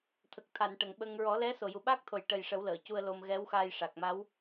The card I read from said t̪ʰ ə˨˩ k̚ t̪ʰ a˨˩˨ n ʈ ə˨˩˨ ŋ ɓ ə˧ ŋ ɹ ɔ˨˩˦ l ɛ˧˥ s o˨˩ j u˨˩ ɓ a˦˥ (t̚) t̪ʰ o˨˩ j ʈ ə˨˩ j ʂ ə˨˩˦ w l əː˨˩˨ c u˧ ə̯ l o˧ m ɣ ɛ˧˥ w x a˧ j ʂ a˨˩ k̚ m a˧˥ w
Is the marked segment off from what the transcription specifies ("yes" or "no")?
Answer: yes